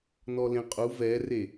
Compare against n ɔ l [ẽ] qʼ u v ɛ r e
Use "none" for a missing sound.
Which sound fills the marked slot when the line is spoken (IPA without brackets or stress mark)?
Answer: ẽ